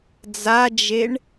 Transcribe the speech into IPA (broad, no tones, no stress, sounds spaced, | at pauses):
d͡z a d͡ʒ e ɳ